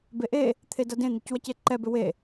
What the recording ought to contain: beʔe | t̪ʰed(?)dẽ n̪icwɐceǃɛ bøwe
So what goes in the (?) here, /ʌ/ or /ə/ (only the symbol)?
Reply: ʌ